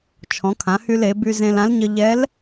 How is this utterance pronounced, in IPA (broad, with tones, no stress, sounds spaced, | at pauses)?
t͡ʃʰ ɔ̃˩˧ kʰ ã˩˧ h y˧ l e˩˧ b y˧ z ẽ˧ l ã˧˥ l ɲ ə˧ ʎ ɛ˧˥ l